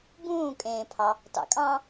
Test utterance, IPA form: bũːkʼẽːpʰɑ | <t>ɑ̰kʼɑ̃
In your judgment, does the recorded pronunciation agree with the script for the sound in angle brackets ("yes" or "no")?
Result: yes